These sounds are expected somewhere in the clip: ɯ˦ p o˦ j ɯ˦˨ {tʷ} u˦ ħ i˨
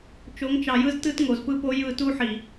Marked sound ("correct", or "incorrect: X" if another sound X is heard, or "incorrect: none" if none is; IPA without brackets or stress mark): incorrect: t